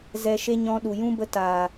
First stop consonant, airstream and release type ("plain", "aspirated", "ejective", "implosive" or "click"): implosive